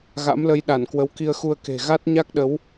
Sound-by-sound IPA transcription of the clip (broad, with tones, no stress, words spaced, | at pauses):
ɣa̰˧˥mlə˨˦j ɗa˧˩n kwə˨˦wki˧ə̯xu˧ə̯ke̤˨˩ ɣa˦˥t̚ɲa˦˥k̚ɗə˨˦w